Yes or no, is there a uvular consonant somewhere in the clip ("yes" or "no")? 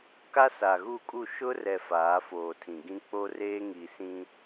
no